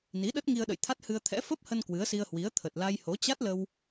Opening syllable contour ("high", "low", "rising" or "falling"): rising